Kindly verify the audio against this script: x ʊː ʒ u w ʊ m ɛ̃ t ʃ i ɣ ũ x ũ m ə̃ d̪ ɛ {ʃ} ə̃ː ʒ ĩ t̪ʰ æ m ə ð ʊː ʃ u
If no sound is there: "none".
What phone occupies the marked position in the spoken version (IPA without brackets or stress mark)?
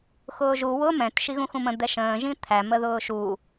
ʃ